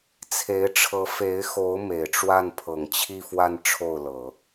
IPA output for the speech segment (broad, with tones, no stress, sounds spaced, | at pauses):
t͡sʰ e˧˥ ɪ̯ ʈ͡ʂʰ ɤ˧˥ f e˧˥ ɪ̯ x o˧˥ ʊ̯ m e˨˩ ɪ̯ ʈ͡ʂ w a˥˩ n pʰ ɤ˨˩ ŋ t͡ɕʰ i˥˧ f w a˥˧ n ʈ͡ʂʰ o˥˩ ʊ̯ l ɤ˨˩˦